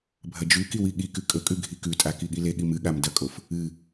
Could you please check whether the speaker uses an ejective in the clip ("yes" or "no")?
yes